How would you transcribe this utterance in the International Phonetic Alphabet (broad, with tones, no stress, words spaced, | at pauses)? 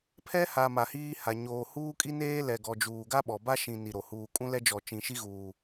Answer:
pʰɛ˦ha˨ ma˨hiː˦ha˨ ɲoː˨huː˦kʼi˦neː˦ lɛ˨ɡɔ˨d͡ʒuː˨ɡa˦ ɓɔ˨ ba˦ʃĩ˨ ni˨ɾo˨ huː˨kʼũ˦lɛ˦d͡ʒɔ˨ t͡ʃĩ˨ʃi˦ɣuː˨